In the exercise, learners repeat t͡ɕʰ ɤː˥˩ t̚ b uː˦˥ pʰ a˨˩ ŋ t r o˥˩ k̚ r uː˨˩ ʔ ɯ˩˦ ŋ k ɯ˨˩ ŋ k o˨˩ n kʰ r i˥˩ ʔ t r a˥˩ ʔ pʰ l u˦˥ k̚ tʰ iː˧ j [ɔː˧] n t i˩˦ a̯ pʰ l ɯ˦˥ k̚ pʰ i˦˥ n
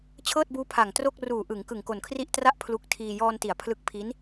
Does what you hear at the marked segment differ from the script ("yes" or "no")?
no